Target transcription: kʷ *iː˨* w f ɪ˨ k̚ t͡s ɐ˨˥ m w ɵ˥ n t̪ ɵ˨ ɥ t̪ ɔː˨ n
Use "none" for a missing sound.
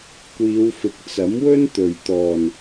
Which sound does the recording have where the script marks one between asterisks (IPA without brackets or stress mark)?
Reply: iː˨˧